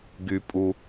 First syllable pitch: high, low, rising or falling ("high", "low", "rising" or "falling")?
high